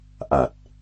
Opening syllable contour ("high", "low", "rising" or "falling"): low